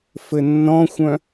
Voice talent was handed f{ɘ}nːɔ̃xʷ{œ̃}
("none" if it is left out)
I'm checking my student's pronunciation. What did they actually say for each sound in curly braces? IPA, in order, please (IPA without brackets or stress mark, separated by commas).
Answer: ɘ, œ̃